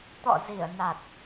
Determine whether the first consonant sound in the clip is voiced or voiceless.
voiceless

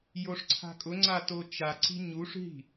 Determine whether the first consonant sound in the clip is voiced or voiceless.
voiced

